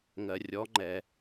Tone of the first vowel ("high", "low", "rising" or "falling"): low